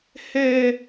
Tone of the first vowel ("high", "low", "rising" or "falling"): high